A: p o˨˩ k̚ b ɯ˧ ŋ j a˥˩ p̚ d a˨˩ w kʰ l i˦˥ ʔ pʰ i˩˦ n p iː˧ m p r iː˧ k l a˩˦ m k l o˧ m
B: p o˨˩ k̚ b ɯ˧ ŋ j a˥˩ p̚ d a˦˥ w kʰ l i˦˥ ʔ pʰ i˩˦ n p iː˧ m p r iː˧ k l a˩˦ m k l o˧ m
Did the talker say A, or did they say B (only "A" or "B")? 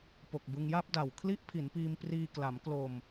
A